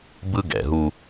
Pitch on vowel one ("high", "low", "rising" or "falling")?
high